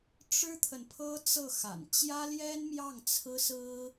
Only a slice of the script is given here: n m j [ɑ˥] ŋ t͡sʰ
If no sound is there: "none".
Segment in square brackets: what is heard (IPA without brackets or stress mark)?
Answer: ɑ˥˩